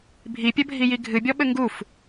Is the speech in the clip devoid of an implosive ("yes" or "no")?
no